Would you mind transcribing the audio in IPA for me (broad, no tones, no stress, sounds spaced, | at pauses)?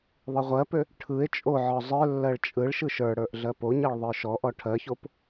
ðˤ ɯ ʁʷ ɜ p ø | ʈʰ ɯ e̯ t͡ʃʼ o ʕ ɔ zˤ ə˞ lː ɜ ɭ t͡ʃʼ ɯ ɭ ʃ ɯ ʃ ə˞ ɽ ə˞ ʔ ɮ ɜ p o ɲ ɜ ɭ ðˤ ə˞ ʃ ɔ ʔ ɔ ʈʰ ɜ ç o p